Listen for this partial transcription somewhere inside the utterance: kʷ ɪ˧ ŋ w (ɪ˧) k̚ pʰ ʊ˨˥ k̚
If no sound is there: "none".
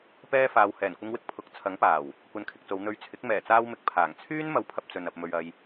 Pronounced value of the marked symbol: ɪ˧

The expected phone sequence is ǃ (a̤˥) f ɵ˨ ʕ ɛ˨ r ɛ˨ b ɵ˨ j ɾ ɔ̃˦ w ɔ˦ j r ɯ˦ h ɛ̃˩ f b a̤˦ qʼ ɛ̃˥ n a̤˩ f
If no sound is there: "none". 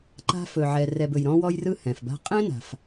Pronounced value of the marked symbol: a̤˥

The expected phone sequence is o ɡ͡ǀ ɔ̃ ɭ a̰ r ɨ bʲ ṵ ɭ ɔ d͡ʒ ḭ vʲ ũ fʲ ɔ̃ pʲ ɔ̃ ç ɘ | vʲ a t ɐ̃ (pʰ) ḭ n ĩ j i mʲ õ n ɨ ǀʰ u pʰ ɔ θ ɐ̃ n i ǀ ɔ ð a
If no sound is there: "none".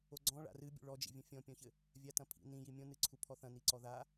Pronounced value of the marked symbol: pʰ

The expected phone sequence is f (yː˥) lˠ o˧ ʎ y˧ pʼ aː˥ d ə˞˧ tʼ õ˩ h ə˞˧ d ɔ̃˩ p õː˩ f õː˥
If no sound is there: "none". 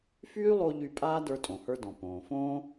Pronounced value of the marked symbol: yː˥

